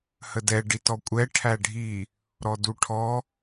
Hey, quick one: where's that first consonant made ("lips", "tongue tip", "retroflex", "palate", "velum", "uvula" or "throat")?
throat